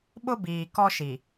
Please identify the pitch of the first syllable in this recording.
high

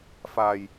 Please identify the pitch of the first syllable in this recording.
low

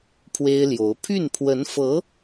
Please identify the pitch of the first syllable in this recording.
high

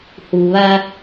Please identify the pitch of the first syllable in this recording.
low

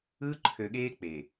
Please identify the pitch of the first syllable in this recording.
high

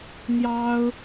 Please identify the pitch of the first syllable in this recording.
high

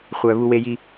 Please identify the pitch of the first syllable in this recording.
low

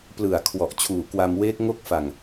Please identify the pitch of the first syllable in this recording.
low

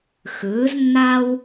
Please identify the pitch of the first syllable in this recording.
rising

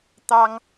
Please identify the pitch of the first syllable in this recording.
high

